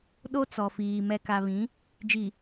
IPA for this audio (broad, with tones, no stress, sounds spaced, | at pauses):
ɗ o˦ t͡s ɔ˨ f iː˨ m ɛ˨ k a˨ β ĩ˨˦ | d͡ʒ i˨